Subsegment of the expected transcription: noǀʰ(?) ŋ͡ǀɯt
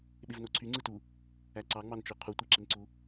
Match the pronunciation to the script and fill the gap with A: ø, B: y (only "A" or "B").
B